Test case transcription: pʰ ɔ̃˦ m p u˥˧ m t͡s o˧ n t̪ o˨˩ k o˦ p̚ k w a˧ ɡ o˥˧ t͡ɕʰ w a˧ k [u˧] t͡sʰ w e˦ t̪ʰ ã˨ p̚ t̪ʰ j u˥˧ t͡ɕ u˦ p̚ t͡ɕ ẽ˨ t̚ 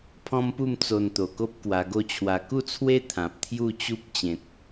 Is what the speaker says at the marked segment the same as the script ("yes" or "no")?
no